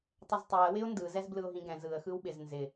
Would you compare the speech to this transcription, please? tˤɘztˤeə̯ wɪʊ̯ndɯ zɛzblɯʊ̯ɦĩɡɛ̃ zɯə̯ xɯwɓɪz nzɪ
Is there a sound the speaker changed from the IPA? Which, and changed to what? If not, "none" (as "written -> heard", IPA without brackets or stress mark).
none